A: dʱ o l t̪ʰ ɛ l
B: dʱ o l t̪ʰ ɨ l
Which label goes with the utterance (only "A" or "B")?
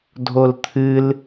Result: B